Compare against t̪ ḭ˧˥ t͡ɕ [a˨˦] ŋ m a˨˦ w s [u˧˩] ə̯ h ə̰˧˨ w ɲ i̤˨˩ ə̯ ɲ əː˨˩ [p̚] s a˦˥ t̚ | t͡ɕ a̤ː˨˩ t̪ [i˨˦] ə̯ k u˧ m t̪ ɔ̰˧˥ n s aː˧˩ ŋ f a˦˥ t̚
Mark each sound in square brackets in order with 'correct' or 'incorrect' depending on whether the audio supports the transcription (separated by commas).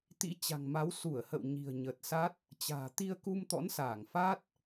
incorrect, correct, incorrect, incorrect